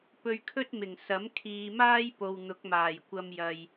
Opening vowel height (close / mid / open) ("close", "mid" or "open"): mid